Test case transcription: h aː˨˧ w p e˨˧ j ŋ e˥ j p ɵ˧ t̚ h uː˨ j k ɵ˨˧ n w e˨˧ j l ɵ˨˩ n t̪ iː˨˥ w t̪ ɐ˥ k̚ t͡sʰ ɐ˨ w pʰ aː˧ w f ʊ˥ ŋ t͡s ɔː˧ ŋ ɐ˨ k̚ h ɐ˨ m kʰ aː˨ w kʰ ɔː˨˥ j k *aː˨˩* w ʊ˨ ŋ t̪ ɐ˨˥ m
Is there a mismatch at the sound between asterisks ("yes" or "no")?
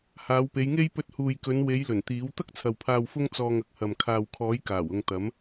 no